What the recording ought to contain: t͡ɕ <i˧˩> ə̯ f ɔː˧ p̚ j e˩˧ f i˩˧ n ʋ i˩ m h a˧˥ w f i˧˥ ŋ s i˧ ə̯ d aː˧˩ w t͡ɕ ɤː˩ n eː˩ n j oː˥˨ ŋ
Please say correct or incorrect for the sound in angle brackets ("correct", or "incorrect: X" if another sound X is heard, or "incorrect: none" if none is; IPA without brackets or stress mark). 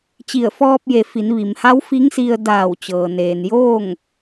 correct